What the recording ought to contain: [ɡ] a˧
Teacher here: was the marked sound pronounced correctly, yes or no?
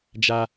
no